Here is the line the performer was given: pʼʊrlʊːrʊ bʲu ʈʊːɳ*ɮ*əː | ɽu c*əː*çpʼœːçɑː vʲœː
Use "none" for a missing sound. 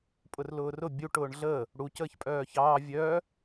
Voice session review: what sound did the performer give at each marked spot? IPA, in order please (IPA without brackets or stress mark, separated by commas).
ɮ, əː